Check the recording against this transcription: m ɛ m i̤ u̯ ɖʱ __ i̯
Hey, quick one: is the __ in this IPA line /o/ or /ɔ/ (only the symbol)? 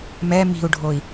o